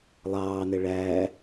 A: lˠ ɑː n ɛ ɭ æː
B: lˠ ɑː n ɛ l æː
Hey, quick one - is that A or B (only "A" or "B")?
A